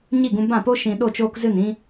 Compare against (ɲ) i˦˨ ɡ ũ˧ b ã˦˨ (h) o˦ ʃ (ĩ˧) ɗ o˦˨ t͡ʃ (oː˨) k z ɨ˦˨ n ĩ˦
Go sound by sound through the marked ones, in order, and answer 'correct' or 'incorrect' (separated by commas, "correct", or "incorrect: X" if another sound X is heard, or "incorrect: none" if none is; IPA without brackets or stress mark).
correct, incorrect: p, correct, incorrect: oː˧